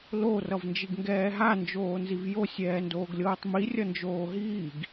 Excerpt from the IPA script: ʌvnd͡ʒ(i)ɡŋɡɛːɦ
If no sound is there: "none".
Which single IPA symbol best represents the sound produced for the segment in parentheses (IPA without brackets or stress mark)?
i